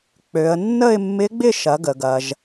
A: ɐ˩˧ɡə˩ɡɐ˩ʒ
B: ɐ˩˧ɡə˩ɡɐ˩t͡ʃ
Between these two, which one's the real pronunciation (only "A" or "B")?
A